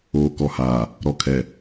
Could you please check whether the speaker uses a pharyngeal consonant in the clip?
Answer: no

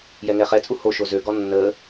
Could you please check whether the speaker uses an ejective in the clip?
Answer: yes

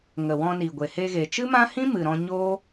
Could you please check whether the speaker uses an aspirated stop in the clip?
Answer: no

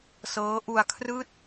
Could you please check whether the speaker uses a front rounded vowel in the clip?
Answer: no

